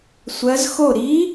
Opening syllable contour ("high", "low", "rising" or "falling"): rising